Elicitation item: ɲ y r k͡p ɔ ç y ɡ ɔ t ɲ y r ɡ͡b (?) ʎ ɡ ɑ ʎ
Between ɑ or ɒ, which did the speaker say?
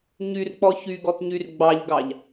ɑ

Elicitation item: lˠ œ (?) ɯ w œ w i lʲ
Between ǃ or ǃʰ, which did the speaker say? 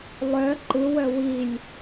ǃ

